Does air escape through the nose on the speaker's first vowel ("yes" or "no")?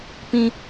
yes